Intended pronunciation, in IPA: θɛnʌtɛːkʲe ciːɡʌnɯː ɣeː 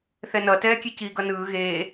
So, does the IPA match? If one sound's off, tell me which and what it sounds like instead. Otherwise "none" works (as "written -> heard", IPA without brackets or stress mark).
none